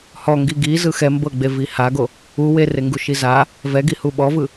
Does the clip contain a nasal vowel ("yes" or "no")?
no